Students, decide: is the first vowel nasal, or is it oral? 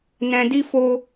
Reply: nasal